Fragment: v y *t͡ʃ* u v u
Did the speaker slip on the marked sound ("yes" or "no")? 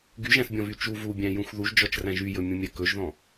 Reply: no